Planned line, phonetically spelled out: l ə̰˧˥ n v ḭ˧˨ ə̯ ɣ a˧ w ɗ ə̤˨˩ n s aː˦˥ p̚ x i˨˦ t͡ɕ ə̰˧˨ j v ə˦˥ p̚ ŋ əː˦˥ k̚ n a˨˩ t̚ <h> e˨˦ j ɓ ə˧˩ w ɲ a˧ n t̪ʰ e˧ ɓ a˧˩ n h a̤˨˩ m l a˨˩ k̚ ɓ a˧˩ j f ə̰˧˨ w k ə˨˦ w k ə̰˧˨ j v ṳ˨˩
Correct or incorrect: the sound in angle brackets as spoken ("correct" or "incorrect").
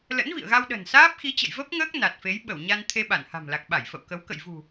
incorrect